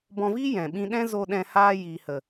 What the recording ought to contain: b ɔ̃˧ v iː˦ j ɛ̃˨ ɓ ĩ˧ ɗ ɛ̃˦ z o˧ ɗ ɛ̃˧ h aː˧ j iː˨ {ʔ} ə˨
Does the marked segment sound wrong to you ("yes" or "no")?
yes